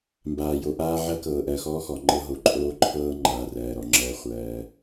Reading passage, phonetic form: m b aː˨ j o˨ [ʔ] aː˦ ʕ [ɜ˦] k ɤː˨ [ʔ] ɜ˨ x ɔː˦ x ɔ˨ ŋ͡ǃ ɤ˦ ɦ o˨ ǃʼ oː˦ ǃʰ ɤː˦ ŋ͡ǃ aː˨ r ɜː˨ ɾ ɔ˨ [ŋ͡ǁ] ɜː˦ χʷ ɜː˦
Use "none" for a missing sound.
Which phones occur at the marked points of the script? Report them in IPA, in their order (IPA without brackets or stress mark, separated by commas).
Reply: ʔ, ɜ˦, ʔ, ŋ͡ǁ